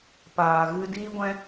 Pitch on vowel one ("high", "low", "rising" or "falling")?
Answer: low